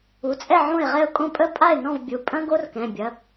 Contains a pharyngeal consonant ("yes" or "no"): yes